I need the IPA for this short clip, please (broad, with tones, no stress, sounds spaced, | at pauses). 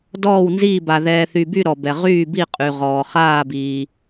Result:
d ɔː˧˩ w n z iː˧˩ b a˩ ð ɛː˩ θ y˩ b y˧˩ ɾ ɔ˩ b ɛ˩ ʁ yː˧˩ b i˧˩ qʼ y˩ ʁ ɔː˩ χ aː˧˩ b iː˩